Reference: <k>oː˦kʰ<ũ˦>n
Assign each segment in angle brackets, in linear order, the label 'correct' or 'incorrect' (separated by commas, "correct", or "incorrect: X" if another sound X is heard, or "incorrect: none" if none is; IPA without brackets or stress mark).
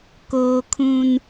correct, correct